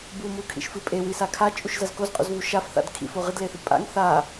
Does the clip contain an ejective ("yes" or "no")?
yes